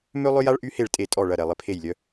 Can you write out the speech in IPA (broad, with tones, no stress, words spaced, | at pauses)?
mø˥lˠʏ˥ja˥ɭ ʔy˥he˥˨ɭtʼe˥˨ tʼɔ˥˨ ɭɐ˥˨ɾɛ˥˨ lˠɪ˥pʰe˥˨jlʲœ˥